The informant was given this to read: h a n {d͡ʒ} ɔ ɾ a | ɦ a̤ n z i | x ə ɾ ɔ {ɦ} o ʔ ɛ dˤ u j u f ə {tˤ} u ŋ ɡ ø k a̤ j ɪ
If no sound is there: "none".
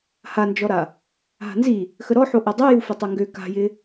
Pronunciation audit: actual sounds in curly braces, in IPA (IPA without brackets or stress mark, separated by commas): d͡ʒ, ħ, tˤ